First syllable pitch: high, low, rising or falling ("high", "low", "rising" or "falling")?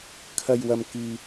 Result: low